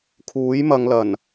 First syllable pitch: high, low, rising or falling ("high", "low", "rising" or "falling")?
rising